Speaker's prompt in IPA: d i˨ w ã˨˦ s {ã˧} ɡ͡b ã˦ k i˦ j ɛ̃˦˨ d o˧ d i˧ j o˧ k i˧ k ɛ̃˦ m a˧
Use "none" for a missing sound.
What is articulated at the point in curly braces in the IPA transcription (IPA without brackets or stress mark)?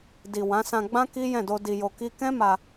ã˧